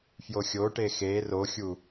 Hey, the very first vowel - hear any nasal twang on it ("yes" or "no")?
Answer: no